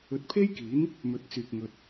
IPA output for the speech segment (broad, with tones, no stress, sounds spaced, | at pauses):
ɵ˨ t̚ pʰ e˥ j k iː˨˥ n | m ɵ˨˥ t̚ t͡s yː˨ k̚ ŋ ɵ˧ t̚